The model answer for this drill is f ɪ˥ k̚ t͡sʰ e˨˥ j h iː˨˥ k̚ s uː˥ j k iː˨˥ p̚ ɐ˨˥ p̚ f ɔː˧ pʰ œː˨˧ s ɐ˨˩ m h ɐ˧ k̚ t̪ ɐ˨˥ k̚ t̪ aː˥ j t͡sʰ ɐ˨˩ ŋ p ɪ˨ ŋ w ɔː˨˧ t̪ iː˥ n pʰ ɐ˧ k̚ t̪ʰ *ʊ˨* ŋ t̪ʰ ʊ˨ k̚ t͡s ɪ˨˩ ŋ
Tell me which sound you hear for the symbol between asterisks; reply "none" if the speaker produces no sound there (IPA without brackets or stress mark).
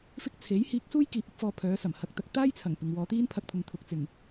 ʊ˨